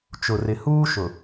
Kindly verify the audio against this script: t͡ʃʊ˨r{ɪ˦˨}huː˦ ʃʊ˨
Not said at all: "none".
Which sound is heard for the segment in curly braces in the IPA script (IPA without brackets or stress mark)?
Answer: ɪ˨